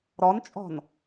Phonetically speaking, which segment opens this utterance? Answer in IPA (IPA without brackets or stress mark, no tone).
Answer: ɾ